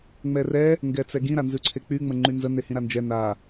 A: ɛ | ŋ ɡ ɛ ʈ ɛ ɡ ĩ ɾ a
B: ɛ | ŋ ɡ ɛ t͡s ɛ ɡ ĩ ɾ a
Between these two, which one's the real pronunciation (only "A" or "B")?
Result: B